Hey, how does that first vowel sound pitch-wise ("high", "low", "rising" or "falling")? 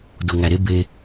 low